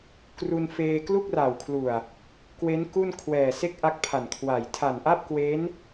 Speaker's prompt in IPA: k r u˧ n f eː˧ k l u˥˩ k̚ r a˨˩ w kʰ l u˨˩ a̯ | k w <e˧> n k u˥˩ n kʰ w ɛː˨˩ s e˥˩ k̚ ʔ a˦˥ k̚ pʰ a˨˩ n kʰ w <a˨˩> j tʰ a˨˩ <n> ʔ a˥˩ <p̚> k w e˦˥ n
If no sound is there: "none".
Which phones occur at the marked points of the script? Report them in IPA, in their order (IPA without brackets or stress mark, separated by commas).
e˦˥, a˨˩, n, p̚